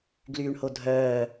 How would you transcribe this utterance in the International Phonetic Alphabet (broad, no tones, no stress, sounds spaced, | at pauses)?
ɡ l yː ɳ h o dʱ œː